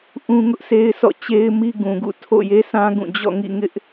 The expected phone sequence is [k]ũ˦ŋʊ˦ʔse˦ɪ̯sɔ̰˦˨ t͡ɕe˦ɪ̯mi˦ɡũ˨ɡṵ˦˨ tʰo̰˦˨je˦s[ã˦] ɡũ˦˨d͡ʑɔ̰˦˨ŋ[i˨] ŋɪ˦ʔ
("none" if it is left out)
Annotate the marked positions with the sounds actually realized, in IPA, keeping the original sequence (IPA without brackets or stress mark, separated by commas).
ʔ, ã˦, ḭ˦˨